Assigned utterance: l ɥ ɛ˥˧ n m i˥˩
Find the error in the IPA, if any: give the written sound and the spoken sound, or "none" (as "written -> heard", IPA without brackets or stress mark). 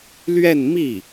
none